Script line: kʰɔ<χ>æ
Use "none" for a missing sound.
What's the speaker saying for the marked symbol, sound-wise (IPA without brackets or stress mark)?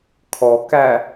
k